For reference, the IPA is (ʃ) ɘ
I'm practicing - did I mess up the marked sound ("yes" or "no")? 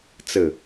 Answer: yes